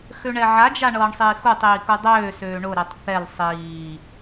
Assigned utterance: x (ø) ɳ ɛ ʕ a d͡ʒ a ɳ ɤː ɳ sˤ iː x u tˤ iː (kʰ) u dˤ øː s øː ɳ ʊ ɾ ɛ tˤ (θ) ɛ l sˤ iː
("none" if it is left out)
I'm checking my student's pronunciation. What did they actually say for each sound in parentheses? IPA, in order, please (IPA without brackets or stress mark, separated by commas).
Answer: ø, k, θ